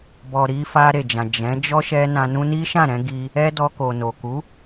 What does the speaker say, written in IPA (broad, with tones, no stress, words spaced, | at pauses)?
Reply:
bɔ˨ɾi˧ fa˧ ɾe˨d͡ʒã˨ d͡ʒɛ̃˨˦ d͡ʒɔ˦ʃɛ˧ nã˧ nũ˧ni˦ʃã˦˨ɾɛ̃˧ ɡi˧ | ɛ˦dɔ˧ ko˨no˨ ku˨˦